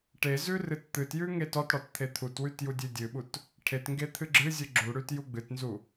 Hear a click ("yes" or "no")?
yes